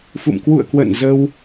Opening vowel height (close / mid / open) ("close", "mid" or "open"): close